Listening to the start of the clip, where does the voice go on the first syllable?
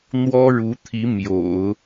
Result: high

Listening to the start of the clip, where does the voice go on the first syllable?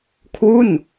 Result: falling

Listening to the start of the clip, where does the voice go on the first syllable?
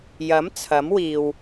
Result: rising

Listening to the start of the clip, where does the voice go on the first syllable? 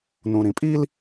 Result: low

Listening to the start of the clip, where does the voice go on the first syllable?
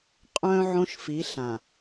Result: high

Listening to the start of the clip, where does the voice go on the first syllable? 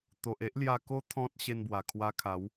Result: low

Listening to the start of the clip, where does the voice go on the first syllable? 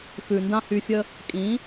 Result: low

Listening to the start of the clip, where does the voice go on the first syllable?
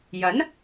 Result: rising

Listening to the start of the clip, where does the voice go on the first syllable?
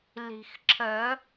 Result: low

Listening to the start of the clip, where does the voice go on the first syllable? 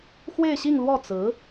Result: falling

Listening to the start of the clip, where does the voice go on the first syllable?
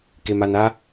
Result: low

